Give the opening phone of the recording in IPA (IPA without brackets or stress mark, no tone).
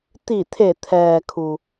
t̪